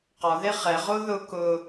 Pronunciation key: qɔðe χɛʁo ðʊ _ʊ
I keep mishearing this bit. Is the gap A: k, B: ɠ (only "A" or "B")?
A